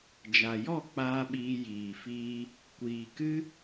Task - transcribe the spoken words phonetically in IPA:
d͡ʒ a˨ j ɔ˦˨ k͡p aː˦ ɓ iː˧ j iː˨ f iː˧ | kʷ iː˨ k ɨ˦

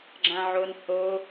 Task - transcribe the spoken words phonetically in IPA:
ɡ͡ǁ ã ʕ o n h o

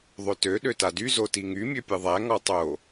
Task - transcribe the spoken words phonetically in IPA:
ðˤ ø t ø ɗ ø t a d y z o t i ŋ y mʲ ø pʲ ɯ ðˤ æ ŋ ɔ tˤ o

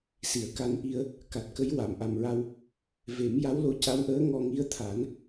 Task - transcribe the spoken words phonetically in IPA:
s i˨˩˨ ə̯ k a˧ n ʔ i˧ ə̯ | k a˨˩ t̚ k ə˧˥ j w a˨˩˨ m ʔ a˨˩ m ɹ a˧ w | v e˨˩˦ m j a˧˥ w l o˧ c a˧˥ w ʔ əː˧˥ ŋ ɔ˧ ŋ i˧˥ ə̯ t̪ʰ a˨˩˦ n

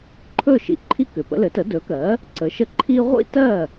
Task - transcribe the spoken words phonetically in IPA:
ǃʰ ɵ˥˩ ʃ ḭ˧ ǃʰ i˧ k ʏ˩ p ə̰˧ l ɘ˩˥ t ə˩˥ d ɵ˩˥ k ɜ˩˥ | ǀ ə˩˥ ʃ ə˥˩ ǃʰ i˥ ʁʷ ḭ˥ t ɜ˥˩

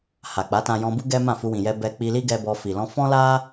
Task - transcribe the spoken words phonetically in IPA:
h a˨ k͡p a˨˦ t ã˧ j ɔ̃˧ b u˦ ɡ ɛ˦ m ã˦˨ f u˧ w ĩ˨ j ɛ˧ b ɛ˧ k͡p i˧ l i˦ ɡ ɛ˧ b ɔ˧ f i˨ l ɔ̃˧ f ɔ̃˦ l a˦

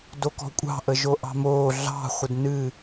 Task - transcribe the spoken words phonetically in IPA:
d o k ɔ̤ kʷʼ ɑ̤ ʔ ə ʒ o ʔ ɑ̤ m oː ɮ ɑ̤ χʷ ə d n ɨ

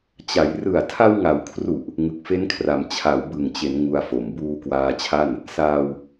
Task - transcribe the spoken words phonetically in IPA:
t͡ɕ a˩˦ j r ɯ˨˩ a̯ tʰ a˧ w ŋ a˩˦ w kʰ r u˨˩ ʔ | ŋ ɯ˨˩ k̚ f e˦˥ n kʰ r a˩˦ m t͡ɕʰ a˩˦ w b ɯ˨˩ ŋ t͡ɕ e˩˦ n ŋ u˧ a̯ f o˨˩ m b uː˧ k w aː˧ t͡ɕʰ a˥˩ n | s aː˧ w

